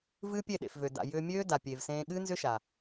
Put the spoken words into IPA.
vɨː˦pʲe˦˨ɗḛ˨fvø˨ da̰˨ jʏː˧mʲøː˦ da˨pʲeː˨vsẽː˧ ɠɨː˦nzʏ˦ʃa˨

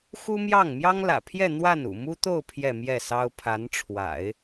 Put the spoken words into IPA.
xu˥mjɑ˥˩ŋ mjɑ˥ŋlä̰˨˩pʰjɛ˥˧ n̪wa˥˩n ṵ˨˩mu˥t̪o˥˧ʊ̯ pʰjɛ˥˧mjɛ˥˩sɑ˥ʊ̯ pʰa˧˥nʈ͡ʂʰwa̰˨˩˦ɪ̯

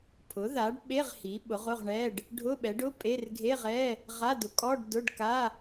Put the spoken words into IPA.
pʰʊ˩˥ða˩˥ɖɓe˧˥˧ʁ hi˩˥ ɓʊ˩˥ʁʊ˧˥˧ʁɳɛ˧˥˧ɖ | ɖʱʊ˧˥˧ɓɛ˩˥ɖʊ˧˥˧pʼe˧˥˧r ɡʱe˧˥˧ʁɛ˧˥˧ | ʁa˧˥˧ dʊ˩˥kʼɔ˧˥˧ɖ dʊ˧˥˧ɖka˧˥˧

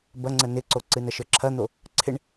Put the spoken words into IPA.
bɐŋ͡ǀə nɪǀoǀɨ nɐʃə˞ǁʰɐn̪o | ǀʰɪɳ

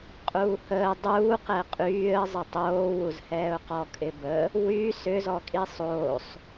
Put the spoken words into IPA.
qʼuːhəː dˤuːqɛ qʼyːə̯zˤə tˤoːwuzhɛːʊ̯qɔ kʼɪbə | wy sʏzɔkʼi sˤoːsˤ

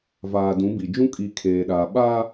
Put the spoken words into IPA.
vaː˨dũ˨˦bi˨ d͡ʒũ˦kʼi˨ kʰeː˨ɗaː˨ ɓa˦

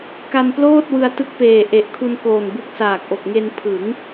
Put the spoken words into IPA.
ka˧nploː˥˩t̚wɯ˧a̯ tɯ˦˥k̚peː˨˩ ʔe˨˩ʔkʰu˧nkoː˨˩nbu˦˥k̚ saː˨˩k̚ʔo˨˩k̚ŋe˧n pʰɯ˩˦ŋ

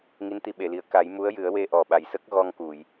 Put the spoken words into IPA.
ŋi˧˥nt̪i˧ɓe˨˩˨li˨˩˨ə̯ ka˨˩˦jmu˧˥ə̯jɨ˨˩˦ə̯we˧ ʔɔ˨˩ɓa˨˩jsə˦˥k̚ ɣɔ˧ŋku˨˩˨j

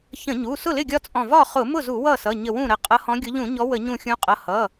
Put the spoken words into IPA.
çə̃˧˩˧ɲu˩˧˩ sʊ˥˩lɪ˥˩ɡʲɒ˦t͡sʼɔ̃˧˩ vɒ˥˩ χʊ˧˩˧mʊ˥˩zu˧˩˧ wʌ˥˩sʌ˩˧˩ ɲə˧˩wũ˥˩ɾə˧˩ qʼʌ˨˦hɔ̃˨˦ɡʲʊ˨˦ʎũ˧˩˧ ɲɔ˨˦ wə˧˩˧ɲũ˧˩xʲũ˨˦qʼʌ˩˧˩ hʌ˩˧˩

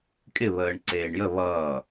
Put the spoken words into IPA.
kʼɪβəːɳǀeːɳ jə βʌː

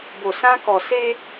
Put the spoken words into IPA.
bo˨sã˦kɔ˨ se˦

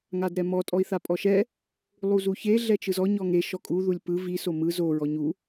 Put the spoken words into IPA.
ŋadɾɛmɔ tʼɔi̯θapʼɔʃɛ | lˠuzuçe ɮɛt͡ʃɯzɔ ɲɔŋe ʃɔkʼu ðulʲpɯ vi somɯ zo ɹɔɲu

